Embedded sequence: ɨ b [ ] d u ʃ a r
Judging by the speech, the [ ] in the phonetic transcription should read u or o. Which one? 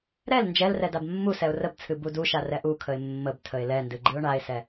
u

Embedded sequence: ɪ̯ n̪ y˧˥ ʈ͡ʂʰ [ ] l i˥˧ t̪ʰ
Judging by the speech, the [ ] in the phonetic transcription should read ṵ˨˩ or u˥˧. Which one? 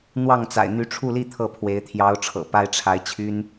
u˥˧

